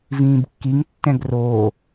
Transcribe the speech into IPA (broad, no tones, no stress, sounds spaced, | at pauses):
v ĩː b kː i ŋ tː ɛ̃ ɡ r o